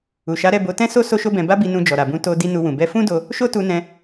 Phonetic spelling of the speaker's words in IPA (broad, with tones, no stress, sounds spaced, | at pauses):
u˨ ʃ a˨˦ ɾ ɛ˦˨ b o˨˦ t ɛ̃˦ s o˦ s o˦ ʃ o˦ b ɛ̃˧ b a˦ b i˧ n ũ˧ d͡ʒ ɔ˨ ɾ a˨ b ũ˨˦ t o˧ d i˦ n u˧ w ũ˨ b ɛ˨˦ f ũ˦ d o˧ | ʃ o˦ t u˧ n ɛ̃˧